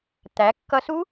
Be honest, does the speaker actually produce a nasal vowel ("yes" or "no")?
no